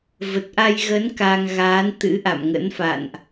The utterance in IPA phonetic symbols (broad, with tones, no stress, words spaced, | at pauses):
və˨˩t̚ʔa˧jɣə˨˦n ka˧ŋɣaː˨˦n t̪ɨ̰˧˥ʔa̰˧˨mŋə̰˧˥nfa̰˧˨nʔ